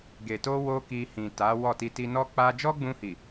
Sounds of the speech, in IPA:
ɡe˨to˧ wo˦ki˧hĩ˨ta˨˦ wɔ˦˨ ti˧ti˧nɔ˦k͡pa˦ d͡ʒɔ˦ɡ͡bũ˧hi˨

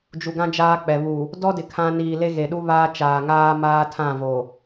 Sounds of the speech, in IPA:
d͡ʒu˨ɡã˦d͡ʒaː˦k͡pɛ˨ βu˨ | dɔ˦dɪ˨ kʰã˦ niː˨le˦ɣe˨ ɗu˦ βaː˦ t͡ʃaː˨ŋaː˦maː˦tʰã˦˨ vo˨

